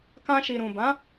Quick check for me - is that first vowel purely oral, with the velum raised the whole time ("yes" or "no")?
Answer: no